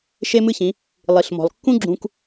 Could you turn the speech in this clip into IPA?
ʃ e˦ m ɨ˦ ç ĩ˨˦ | lˠ i˨ ɬ m ɔ̤˨ lˠ kː ũ˦ ɡ͡ǁ ũ˧ k

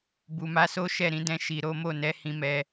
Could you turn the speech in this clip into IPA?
b u˨ m a˨˦ s o˦ ʃ ɛ˦˨ ɾ ĩ˧ d ɛ̃˧ ʃ i˨ ɾ o˨˦ m o˦˨ n ɛ˨˦ h ĩ˧ m ɛ˧

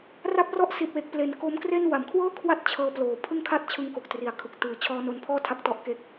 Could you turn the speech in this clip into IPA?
r a˦˥ p̚ r ɔ˦˥ ʔ s i˨˩ t̚ w e˨˩ k̚ p l e˩˦ n k o˦˥ m k r e˥˩ n w a˩˦ m kʰ w ɤː˥˩ kʰ w a˥˩ t̚ t͡ɕʰ ɤː˧ p l oː˨˩ pʰ ɯ˥˩ ŋ kʰ a˥˩ t̚ t͡ɕʰ ɯ˧ ŋ k o˨˩ k̚ t r i˨˩ a̯ kʰ ɯ˨˩ k̚ t ɯː˨˩ t͡ɕʰ ɔː˧ n o˧ n pʰ ɔː˥˩ tʰ a˦˥ k̚ t ɔ˦˥ ʔ k e˦˥ k̚

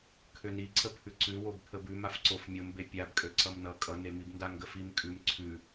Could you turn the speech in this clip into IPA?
kʰ ø n i ǀ ə pʰ ʉ ǀ ʉ w o b pʰ ə b ʉ m a f ǀ o f mʲ o m b e pʲ a b kʼ ø ǀ ʌ m n ʌ kʼ ʌ n e m i b n d a ŋ ɡ ə f i m kʼ ʉ m ǀʰ ʉ

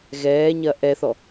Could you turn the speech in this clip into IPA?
ɣ ɛː ɲ ɐ ʔ ɛ θ ɔ

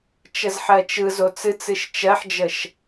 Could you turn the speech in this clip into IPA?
t͡ʃ ə z ħ ɜ t͡ʃ ɯ z o t͡s ɨ t͡s ɨ ʃ t͡ʃ ɜ ħ d͡ʒ ə ʃ

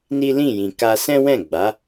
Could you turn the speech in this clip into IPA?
n i˦ l ĩ˦˨ j ĩ˨ k a˧ s ɛ̃˦ w ɛ̃˦˨ ɡ͡b a˨˦

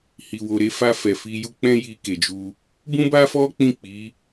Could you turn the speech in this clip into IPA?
h i˨ w o˨ ɾ e˨˦ f a˧ f ɛ˨ f i˧ j u˦ k͡p ɛ̃˦ j i˧ k e˨ d͡ʒ u˧ | b ũ˦ b a˦ f ɔ˦ k͡p ĩ˦˨ k͡p i˨˦

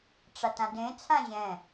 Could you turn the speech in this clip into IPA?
ʈ͡ʂ a t ã d ẽ t͡sʰ ã ʑ ɛ̃

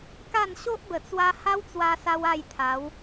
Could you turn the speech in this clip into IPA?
k a˥˧ n ɕ o˦ ʔ b ə˨˩ t͡s w a˦ h a˦ w t͡s w a˧ s a˧ w a˥˧ j t̪ʰ a˨˦ w

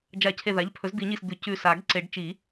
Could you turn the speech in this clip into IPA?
d͡ʒ a˨˩˦ cʰ e˧˩ ð a˩˥ ʎ pʰ ɵ˩˥ z d̪ i˨˩˦ ɲ i˧˩ s d̪ ʉ˨˩˦ c ʉ˧˩ s a˨˩˦ ɡ ǀ e˨˩˦ ɖ t͡ʃ i˨˩˦

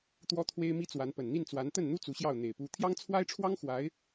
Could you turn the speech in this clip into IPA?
t̪ w ɔ˥ t̪ʰ w e˥ ɪ̯ m i˥ t͡s w a˧˥ n p ə˨˩ n n̪ i˥˩ n t͡s w a˧˥ n t̪ ə˥˩ n n̪ u˥ t͡s u˧˥ ɕ j ɑ˥˩ ʊ̯ n̪ e˨˩ ɪ̯ p u˧˥ t̪ʰ j ɑ˥ ŋ t͡sʰ w a˥ ɪ̯ ʈ͡ʂʰ w ɑ˥ ŋ x w a˧˥ ɪ̯

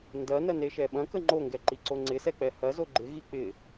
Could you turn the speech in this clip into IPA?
n d ɐ n ɐ n e ʃ ɛ ɓ ɐ̃ k ə ŋ͡ǃ o ŋ ɡ ɛ ǃ i ǀ o ŋ͡ǀ ɪ s ɛ k͡p ɛ h ɐ z o ɡ͡ǃ ɪ ɣ i k͡p ɪ

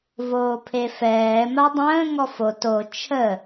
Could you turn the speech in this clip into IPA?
v oː pʰ e f ɛː m a dˤ ə̃ː ŋ ɔ f o t o t͡ʃʰ ə

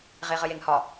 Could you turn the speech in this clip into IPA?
ʁ e ʁ ə j e ŋ h ɒ

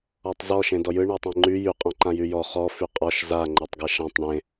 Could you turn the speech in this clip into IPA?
ɔ tˤ z ɔ ʃ ẽ d ɔ j ɯ ɳ e tˤ ẽ ŋ͡ǃ y j y qʼ ɔ̃ ǃ ã j y j ɔ χ ɔ f y qʼ ɔ ʃ z a ŋ͡ǃ ɜ tˤ ɡ ɜ ʃ ã tˤ ɳ ẽ

